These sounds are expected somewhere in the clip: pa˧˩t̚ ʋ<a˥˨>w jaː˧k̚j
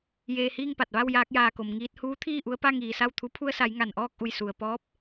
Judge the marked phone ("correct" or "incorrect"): correct